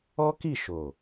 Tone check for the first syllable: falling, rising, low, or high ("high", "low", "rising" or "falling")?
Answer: high